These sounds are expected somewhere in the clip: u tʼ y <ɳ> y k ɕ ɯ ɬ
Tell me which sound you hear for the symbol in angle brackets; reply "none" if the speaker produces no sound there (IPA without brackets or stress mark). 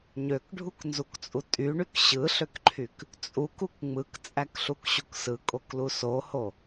ɳ